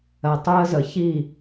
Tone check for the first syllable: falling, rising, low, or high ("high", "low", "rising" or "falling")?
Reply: low